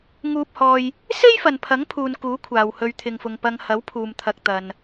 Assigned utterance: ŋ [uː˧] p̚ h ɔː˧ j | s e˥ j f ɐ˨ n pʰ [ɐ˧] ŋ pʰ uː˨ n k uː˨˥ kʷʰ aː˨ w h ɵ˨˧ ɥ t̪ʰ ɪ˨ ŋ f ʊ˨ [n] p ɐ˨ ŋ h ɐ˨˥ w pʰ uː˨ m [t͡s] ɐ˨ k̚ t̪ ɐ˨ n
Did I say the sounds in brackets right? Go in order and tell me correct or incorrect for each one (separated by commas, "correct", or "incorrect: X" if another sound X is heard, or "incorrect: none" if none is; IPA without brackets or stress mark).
correct, incorrect: ɐ˨˥, incorrect: ŋ, incorrect: t̪ʰ